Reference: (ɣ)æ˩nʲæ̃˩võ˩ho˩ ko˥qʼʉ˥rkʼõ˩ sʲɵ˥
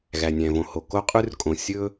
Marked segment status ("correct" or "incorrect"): correct